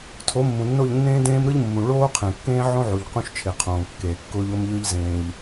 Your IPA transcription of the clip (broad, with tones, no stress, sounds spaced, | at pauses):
tʰ o˨˦ mː ũ˨ nː o˦˨ ʎ nː ẽː˦ d ẽː˦ m ɾ ɯ˦ ʎ mː ũ˨ ɭ oː˦ qʰ ẽ˨ kː ẽː˦ ʕ õ˦ ʕ u˨ ʎ q ũ˦ ʃ t͡ʃʰ e˨ qʰ õː˨ kː eː˨ kː ʊː˦ ʎ ʊː˦ m ʎ ɯ˦ ʎ z ẽː˦ ʎ